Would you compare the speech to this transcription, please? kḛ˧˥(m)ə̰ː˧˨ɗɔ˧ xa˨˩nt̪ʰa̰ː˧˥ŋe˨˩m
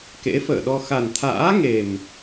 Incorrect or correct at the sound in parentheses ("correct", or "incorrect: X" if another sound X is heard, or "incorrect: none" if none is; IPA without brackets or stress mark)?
incorrect: f